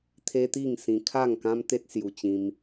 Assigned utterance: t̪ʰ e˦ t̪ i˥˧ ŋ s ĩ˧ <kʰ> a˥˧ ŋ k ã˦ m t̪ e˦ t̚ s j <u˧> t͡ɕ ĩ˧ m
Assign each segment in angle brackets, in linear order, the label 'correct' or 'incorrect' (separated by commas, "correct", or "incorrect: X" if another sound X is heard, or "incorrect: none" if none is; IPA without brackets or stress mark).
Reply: correct, correct